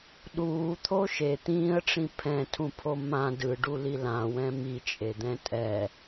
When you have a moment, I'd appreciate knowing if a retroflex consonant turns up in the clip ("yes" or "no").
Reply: yes